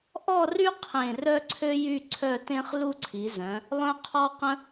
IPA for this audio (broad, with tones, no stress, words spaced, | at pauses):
ʔɔ˥˧ry˥ qʰẽ˥˧ rœ˥ǀʰø˥jy˥˧ ǀʰœ˥˧tẽ˥χ lu˥ǀʰi˨˦zœ̃˨˦ | lˠœ̃˥qʰɔ˥qə̃˥